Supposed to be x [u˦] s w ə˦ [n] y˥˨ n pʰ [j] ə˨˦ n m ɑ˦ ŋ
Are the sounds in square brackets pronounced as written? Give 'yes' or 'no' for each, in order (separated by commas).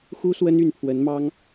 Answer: yes, yes, no